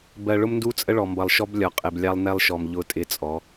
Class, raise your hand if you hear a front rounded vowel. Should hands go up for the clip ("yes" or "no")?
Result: no